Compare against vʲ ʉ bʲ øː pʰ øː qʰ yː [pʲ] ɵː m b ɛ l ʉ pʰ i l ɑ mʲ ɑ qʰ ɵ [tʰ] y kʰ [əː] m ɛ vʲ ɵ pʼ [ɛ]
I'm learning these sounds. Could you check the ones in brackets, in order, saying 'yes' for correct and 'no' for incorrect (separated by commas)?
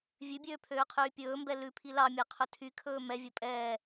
yes, yes, no, no